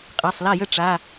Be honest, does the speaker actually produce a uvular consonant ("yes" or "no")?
yes